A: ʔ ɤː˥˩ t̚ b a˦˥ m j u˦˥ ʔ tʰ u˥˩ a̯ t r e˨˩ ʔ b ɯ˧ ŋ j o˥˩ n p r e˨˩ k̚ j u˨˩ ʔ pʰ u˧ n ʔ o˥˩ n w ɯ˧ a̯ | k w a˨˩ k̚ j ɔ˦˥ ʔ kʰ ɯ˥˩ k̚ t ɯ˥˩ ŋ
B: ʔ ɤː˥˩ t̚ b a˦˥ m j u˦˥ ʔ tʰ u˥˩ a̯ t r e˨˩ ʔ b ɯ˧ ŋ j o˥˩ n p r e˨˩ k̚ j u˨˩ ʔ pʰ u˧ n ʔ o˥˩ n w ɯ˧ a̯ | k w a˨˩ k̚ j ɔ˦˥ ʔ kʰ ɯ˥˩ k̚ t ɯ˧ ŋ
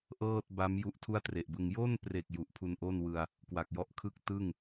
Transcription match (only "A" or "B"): A